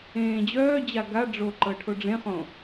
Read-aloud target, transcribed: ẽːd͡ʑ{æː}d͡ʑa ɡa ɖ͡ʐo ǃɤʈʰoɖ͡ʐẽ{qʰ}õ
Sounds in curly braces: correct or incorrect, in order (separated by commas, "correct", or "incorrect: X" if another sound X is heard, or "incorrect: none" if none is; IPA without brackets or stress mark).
incorrect: œː, incorrect: χ